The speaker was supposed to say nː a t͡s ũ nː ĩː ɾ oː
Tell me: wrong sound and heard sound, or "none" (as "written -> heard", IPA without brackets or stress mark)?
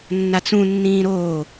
none